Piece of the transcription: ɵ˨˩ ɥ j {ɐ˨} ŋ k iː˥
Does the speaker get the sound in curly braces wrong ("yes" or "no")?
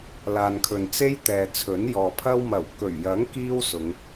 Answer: yes